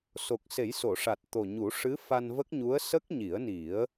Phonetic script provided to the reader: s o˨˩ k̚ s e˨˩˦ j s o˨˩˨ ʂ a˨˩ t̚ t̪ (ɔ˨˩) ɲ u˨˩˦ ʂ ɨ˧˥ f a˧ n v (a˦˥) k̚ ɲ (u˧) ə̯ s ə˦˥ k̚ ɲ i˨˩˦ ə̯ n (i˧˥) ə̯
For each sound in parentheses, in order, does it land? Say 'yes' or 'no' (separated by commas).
no, no, no, no